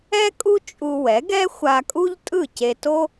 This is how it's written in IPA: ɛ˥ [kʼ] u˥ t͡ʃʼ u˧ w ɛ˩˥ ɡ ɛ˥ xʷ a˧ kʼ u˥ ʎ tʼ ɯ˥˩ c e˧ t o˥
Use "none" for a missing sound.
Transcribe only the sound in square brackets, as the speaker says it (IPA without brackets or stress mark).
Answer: kʼ